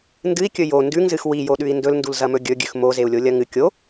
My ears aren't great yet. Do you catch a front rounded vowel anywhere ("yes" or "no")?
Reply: no